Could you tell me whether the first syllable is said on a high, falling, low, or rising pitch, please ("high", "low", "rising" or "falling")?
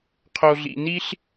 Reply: low